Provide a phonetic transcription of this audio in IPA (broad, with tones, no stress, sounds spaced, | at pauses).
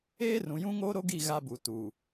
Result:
eː˦ r ũ˨ j ũ˦ ŋ oː˦ ɾ o˦ ɡ i˦˨ ɣ a˦ b u˨ t u˨